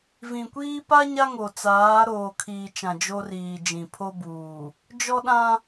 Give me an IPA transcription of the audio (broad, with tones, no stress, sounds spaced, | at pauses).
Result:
v ĩ˨ kʷ iː˦ p a˦ ɲ a˦ ŋ o˨ t͡s aː˨˦ ɾ oː˨ kʰ iː˨ t͡ʃ ã˨ d͡ʒ o˦ r iː˨ d͡ʒ ĩ˨ pʰ o˦ b uː˨ | d͡ʒ ɔ˦ ɗ ã˦